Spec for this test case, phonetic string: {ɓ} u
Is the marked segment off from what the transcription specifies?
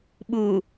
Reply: no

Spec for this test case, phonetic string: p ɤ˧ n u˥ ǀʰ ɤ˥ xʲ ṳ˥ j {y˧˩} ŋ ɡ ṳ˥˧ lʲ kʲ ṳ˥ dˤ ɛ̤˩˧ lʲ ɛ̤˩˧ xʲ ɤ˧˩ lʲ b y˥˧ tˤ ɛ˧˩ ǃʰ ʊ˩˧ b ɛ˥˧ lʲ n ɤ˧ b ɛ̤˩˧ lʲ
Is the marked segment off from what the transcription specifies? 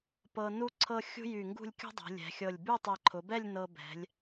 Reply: no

